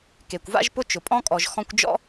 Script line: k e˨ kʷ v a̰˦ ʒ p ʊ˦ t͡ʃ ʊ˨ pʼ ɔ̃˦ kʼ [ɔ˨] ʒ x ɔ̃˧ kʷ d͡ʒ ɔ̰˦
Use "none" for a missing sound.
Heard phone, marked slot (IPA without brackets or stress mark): ɔ˨